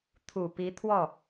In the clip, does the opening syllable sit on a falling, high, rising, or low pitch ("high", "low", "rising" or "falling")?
low